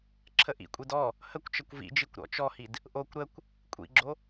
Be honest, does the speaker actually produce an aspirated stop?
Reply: yes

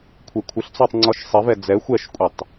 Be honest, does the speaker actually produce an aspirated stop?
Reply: yes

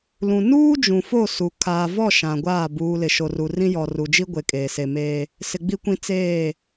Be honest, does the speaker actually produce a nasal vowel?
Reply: yes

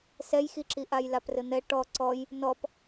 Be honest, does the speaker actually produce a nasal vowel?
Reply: no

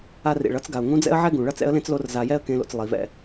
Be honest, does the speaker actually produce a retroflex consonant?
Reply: yes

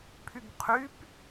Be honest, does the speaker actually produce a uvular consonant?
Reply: yes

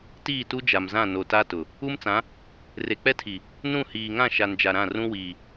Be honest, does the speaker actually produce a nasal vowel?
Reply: yes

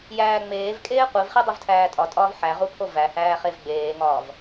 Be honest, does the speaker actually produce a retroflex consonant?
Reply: no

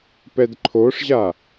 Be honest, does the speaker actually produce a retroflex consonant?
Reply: yes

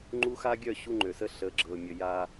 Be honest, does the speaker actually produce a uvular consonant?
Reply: no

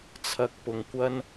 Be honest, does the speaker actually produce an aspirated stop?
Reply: yes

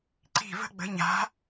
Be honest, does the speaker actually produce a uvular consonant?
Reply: no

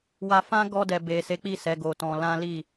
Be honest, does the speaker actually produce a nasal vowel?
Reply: yes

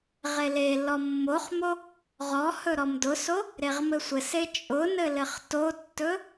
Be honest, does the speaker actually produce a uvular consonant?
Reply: yes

